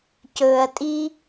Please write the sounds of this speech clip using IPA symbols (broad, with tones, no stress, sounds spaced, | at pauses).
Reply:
c ɵː˨ ɐ̯ tʼ i˦